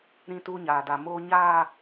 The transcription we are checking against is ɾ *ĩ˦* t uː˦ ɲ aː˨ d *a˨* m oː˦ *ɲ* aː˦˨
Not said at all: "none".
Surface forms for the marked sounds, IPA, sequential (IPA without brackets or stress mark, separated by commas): ĩ˦, a˨, ɲ